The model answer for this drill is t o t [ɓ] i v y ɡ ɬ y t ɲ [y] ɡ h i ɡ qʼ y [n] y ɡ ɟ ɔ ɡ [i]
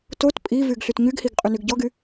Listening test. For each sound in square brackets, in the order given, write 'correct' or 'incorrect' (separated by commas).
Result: incorrect, correct, correct, incorrect